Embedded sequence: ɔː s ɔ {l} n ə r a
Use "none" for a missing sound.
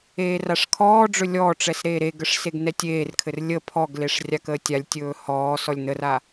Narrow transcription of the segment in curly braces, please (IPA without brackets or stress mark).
lʲ